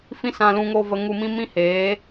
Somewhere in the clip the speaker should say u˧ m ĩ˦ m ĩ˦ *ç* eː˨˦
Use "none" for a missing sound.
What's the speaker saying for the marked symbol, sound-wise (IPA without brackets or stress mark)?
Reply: h